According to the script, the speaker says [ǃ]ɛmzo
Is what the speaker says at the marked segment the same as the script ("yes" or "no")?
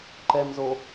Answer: yes